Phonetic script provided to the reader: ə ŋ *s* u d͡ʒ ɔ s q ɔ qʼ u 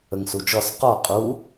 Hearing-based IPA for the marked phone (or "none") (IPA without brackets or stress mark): s